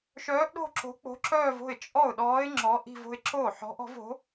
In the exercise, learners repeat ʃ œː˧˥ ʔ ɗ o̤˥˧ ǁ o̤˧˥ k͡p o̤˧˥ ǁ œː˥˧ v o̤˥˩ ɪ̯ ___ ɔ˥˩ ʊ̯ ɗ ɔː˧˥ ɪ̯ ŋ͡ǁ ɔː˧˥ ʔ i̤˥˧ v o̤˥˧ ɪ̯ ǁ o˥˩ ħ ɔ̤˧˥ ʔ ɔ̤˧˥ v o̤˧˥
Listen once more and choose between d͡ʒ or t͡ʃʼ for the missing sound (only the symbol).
t͡ʃʼ